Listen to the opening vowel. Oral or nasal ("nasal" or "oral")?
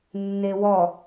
oral